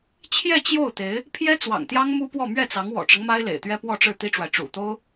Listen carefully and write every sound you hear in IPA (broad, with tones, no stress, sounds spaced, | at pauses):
t͡ɕʰ j ɛ˥˧ t͡ɕ j o˥˩ ʊ̯ t̪ e˧˥ ɪ̯ | pʰ j ɛ˥ t͡s w ɑ̰˨˩ ŋ t̪ j ɑ˥ ŋ m u˥ p w ɔ˥˧ m ɥ ɛ˥˩ t͡s ɑ˧˥ ŋ w ɔ̰˨˩ ʈ͡ʂ ɤ˦ ŋ m a˥ ɪ̯ l ḛ˨˩ ɪ̯ t̪ ɥ ɛ˥ p w ɔ˥˧ ʈ͡ʂ ɻ̩˥˩ t̪ i˥ ʈ͡ʂ w a˨ ɪ̯ ʈ͡ʂ ṵ˨˩ t̪ o˥ ʊ̯